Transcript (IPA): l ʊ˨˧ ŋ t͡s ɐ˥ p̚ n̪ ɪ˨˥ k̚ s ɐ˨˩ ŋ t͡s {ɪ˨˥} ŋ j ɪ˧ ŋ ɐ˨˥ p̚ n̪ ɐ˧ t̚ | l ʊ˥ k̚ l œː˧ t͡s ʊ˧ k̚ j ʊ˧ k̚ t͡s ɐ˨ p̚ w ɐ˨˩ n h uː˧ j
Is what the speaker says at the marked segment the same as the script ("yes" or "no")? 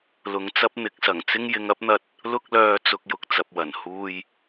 no